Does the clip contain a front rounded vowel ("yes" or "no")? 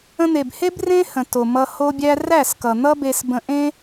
no